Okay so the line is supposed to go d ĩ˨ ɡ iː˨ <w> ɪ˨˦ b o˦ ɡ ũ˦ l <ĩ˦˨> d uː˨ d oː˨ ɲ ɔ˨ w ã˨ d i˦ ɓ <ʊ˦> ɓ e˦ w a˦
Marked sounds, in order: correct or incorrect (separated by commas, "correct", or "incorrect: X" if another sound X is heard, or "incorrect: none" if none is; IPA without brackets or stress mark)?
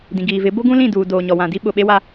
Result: incorrect: v, correct, incorrect: ʊ˨